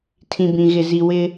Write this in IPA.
tʰ ĩ˨ b ĩ˨ ɣ ɪ˨ z i˨ w ɪ˦

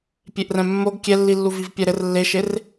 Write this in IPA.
pʲ e ʔ r ɛ̃ mː o ɡ kʲ ɛ lː i lː u v i v pʲ ɛ ɾ ɘ r lː e ʃ e r

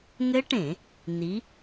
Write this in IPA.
ŋ ɘ˦˥ ʈ ẽ˧˩˧ | n i˨˥

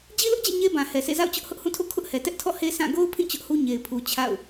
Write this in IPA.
d͡ʑ i˦ l ʊ˦ ʔ d͡ʑ ɛ̰˦˨ ɲ e˦ b ã˨ h ɛ˨ s ḛ˦˨ z a̰˦˨ ʊ̯ t͡ɕ ʊ˦ ʔ h ʊ˦ ʔ h ũ˦˨ tʰ o̰˦˨ kʰ ʊ˦ ʔ h ɛ˨ t ɛ˦ ʔ tʰ ɔ̰˦˨ h e˦ sʰ ã˦˨ ɡ o˦ ʊ̯ pʰ ĩ˦˨ t͡ɕ ʊ˦ ʔ h u˦ ɲ e˨ ɪ̯ pʰ u˨ t͡ɕʰ a̰˦˨ ʊ̯

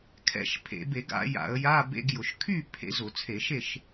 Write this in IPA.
kʰ ɛ̰˧˩˧ ʃ pʰ ḛ˧˩˧ b e˧˩˧ ɡ a̰˨˦ j a̰˧˩˧ ə̯ j a˧˥˧ b ḛ˧˥˧ ɡ j ʊ˧˩˧ ʃ kʰ y˥˨ pʰ ḛ˨˦ z ʊ˧˩˧ t͡sʰ e˧˩˧ ʃ e˥˨ ʃ

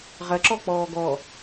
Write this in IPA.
ʁ ɐ ǁ ɔ k͡p ɔː ɡ ɔ

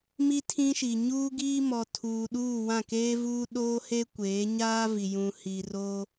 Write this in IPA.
m i˦ tʰ ĩ˦ ʃ i˨ ɲ uː˦ ɡ iː˦ m ɔ˨ tʰ uː˨ ɗ uː˦˨ w ã˦˨ k eː˦ v uː˦ ɗ oː˦ h e˦ kʷ eː˨˦ ɲ aː˦ v i˨ j ũ˨ h i˨ r oː˦

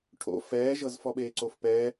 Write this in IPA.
ʈʰ o̰ f ɛː ʒ ɤ z f ɔ ɓ eː ǀ o f p ɛ

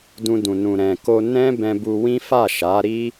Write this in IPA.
d ũ˧ d ũ˨ n ũ˨ ɾ ɛ̃˨ k o˧ n ɛ̃˦ b ɛ̃˧ b u˧ w ĩ˦ f a˦˨ ʃ a˨˦ ɾ i˦

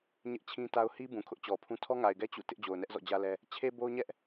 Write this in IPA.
ɲ ɪ˦ ʔ t͡ɕʰ ĩ˦ t a˦ ʊ̯ h i˦ b ũ˨ kʰ ʊ˦ ʔ t͡ɕ ɔ˨ pʰ ũ˦ tʰ ɔ˦ ŋ a˨ ɪ̯ ɡ ɛ˦ t͡ɕ ṵ˦˨ t ɪ˦ ʔ d͡ʑ o˨ ʊ̯ n ɛ˦ ʔ z ɔ̰˦˨ d͡ʑ ä˦ l ɛ˦ | t͡ɕʰ e˦ b o˦ ʊ̯ ɲ ɛ˦ ʔ

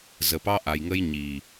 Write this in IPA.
z ə˨ p ɑ˦ ʔ a˨ j ŋ ə˦ j ɲ i˨

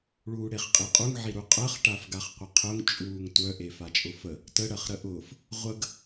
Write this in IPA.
ɭ uː ɽ e χ qʼ i qʼ u ŋ ʕ i ɾ u qʼ ɜ χ ʈ a f ɡ a χ qʷ ə qʰ ʊ ŋ t͡ʃʼ uː ŋ tʷ œ ʔ e f a t͡ʃʼ ʊ f ə | t ə ɽ ɜ χ ɾ ə ʔ ʊː f | ʁʷ ə ɡ

